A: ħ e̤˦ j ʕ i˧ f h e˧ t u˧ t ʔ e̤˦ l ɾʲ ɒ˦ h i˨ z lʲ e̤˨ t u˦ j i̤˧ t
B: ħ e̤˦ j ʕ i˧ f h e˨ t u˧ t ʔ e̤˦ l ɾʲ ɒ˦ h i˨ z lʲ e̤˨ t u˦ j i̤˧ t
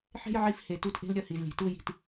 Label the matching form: B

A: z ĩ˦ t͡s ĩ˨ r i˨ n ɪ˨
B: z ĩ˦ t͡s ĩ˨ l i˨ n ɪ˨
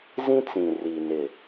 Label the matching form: A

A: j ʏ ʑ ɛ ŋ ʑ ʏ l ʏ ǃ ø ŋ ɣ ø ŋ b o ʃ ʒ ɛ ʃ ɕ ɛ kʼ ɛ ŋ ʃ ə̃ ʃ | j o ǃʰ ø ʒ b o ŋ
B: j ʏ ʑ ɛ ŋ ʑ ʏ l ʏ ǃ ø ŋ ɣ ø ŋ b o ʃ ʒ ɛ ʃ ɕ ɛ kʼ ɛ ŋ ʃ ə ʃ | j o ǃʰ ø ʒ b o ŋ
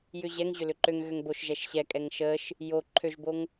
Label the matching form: B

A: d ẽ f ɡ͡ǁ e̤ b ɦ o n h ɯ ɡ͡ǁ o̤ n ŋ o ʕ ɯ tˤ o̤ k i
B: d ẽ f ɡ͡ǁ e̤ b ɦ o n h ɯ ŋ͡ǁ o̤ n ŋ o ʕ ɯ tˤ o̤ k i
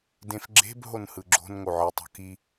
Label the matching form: A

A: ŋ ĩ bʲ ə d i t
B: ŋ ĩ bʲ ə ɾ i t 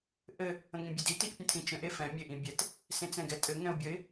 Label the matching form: A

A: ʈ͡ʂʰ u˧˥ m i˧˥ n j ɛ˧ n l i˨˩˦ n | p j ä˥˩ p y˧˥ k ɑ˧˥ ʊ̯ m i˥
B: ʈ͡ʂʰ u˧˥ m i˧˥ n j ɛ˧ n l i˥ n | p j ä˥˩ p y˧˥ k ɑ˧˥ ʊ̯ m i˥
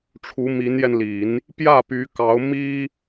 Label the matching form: A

